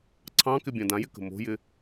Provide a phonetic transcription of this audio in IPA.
ǀʰ ɑ̃ k ɪ bʲ ɑ̃ d ã j ɪ k ə̤ m o̤ j ɪ

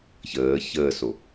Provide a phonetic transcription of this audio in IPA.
ç əː ç əː s o

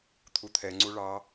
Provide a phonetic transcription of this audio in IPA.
t̪ʰ u t̪ʰ ɛ ŋ͡ǀ u ɭ ɑ

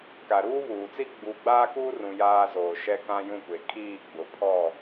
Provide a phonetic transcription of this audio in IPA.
k a˨ ɾ uː˦ β uː˨ t͡s i˦ ɡ͡b u˨˦ ɡ͡b aː˦ k uː˦ r ũ˨ j aː˦ z oː˨ ʃ ɛ˦ k ã˦ j ũ˦˨ kʷ e˨ kʰ iː˦˨ ɡ͡b ʊ˨ pʰ ɔ˦˨

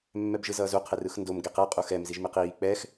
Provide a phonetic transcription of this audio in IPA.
mː ɛ b ʒ ɯ z ʌː z u qʰ e r ɯ x n d o m ɡ e q ɛ qʼ u x ɛ m z i ʒ m i q iː k͡p ɛ x

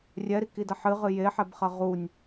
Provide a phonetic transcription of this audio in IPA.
rʲ ɛ ɾ i k i d ɐ ħ ɨ ʁ ɨ j e ħ ɛ b χ ɐ ʁ u nʲ

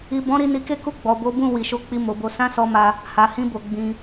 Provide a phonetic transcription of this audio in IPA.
i˨ b ɔ̃˨˦ ɾ i˧ n i˧ k e˦ k u˦˨ ɡ͡b ɔ˨ b o˨˦ b ũ˦˨ w i˨ ʃ o˨˦ k͡p i˧ m o˨ b o˨˦ s ã˦ s ɔ˧ m a˧ | h a˨ h ĩ˧ b o˨ ɡ͡b ĩ˧

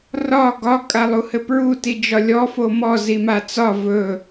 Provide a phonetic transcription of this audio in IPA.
r ɒ ɡ ɒ kʼ a lˠ u h ɘ p ɹ u t i d͡ʒ ɒ lʲ ɔ f o m ɔ z i m a t͡s ɒ v ɵ

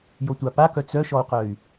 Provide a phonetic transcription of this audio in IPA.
j o tʷ a p a k œ t͡s œ ʃ ɔ u̯ q œ y̯

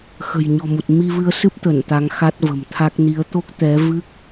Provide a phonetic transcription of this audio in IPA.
x ə̤˨˩ j ɲ ɔ̤˨˩ m u˨˩ t̚ m i˧ v ɨ˧ ə̯ s ɨ˦˥ p̚ t̪ ə˧˩ n t̪ a˨˦ ŋ x a˦˥ t̚ v ə̤˨˩ m t̪ʰ a˦˥ k̚ n i˨˦ ə̯ t̪ o˦˥ k̚ t̪ ɛ˨˦ v ɨ˦˥ k̚

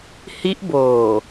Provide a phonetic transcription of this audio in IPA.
h i˦˥ ʔ b oː˨˩

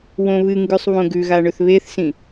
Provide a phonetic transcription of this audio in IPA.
w õ β ɨ ŋ ɡ ʉ sˤ β õ ɡ ʉ ɣ a ɳ ɵ θ β e θ s ĩ

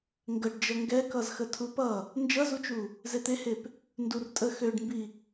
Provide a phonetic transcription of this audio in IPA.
ŋ ɡ ə ɖ d͡ʒ ʌ ŋ ɡ ɛ k ʌ z x ə tʰ u p ʌ | n d͡ʒ ʌ z u t͡ʃ u | z e t̪ e h e p | n d u r tʼ ə x ø ɖ m b i

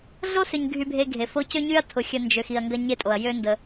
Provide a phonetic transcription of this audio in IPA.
ɮ o˥ s ʏ˨ ɲ ɡʱ y˨ bʱ e˨ ɡʱ e˩ f o˦ c ø˥ ɲ y˥ ɐ̯ tʰ ʊ˨ xʲ ə˨ n d͡ʒ ø˩ x i˨ ɐ̯ ŋ ɡ ɐ˦ ɲ e˦ tʼ o˩ ɐ̯ j ø˦ n d ə˨

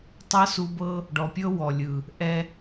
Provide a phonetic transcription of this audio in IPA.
tˤ ɤ˦ s u˧ b ɤ˦ | ɖ ɔ˨ pʲ ɤ˦ w ɔ˨ lʲ ɯ˨ | ʔ ɛ˧

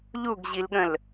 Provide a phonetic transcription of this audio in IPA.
ʎ u ɡ ʑ i l ɠ ə̃ l

